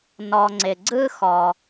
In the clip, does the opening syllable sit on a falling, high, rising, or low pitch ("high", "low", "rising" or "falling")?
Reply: low